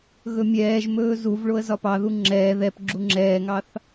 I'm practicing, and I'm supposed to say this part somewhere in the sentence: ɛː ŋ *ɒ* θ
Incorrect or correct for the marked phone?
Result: incorrect: ɑ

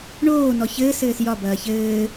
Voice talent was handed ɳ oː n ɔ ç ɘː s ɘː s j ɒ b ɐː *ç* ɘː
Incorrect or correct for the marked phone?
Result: correct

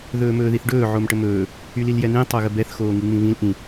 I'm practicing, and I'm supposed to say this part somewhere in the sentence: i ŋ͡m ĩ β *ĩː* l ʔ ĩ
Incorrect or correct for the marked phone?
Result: incorrect: ĩ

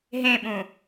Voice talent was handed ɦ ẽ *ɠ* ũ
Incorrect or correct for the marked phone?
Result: incorrect: ɓ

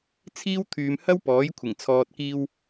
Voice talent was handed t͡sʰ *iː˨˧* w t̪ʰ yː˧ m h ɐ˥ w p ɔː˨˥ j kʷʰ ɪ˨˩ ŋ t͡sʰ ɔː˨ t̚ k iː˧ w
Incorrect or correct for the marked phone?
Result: incorrect: iː˥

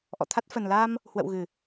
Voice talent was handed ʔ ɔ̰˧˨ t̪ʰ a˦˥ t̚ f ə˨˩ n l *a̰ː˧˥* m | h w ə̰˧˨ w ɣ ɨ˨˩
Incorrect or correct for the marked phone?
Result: incorrect: aː˧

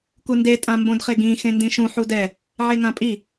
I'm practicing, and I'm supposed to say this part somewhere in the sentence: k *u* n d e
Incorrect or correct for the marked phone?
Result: correct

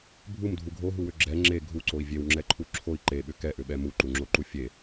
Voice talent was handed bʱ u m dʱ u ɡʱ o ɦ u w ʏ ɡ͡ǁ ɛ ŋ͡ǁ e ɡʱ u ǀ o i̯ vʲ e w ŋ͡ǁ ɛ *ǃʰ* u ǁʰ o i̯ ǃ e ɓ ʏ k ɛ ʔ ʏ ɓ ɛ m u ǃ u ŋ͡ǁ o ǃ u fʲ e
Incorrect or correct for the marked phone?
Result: correct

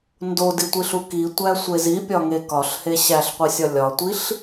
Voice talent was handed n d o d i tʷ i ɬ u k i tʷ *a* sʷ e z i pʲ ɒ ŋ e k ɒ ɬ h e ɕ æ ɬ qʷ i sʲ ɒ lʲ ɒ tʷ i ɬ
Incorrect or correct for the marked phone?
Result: incorrect: æ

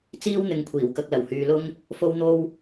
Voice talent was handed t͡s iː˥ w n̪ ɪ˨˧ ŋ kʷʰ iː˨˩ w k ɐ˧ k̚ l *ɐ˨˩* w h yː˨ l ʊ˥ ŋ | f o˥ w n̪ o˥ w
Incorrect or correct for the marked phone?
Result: correct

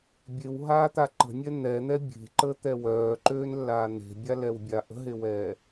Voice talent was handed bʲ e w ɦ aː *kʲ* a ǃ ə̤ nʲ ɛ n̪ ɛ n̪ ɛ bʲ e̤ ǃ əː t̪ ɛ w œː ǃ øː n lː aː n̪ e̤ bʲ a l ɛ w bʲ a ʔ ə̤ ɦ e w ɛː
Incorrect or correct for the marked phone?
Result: incorrect: t̪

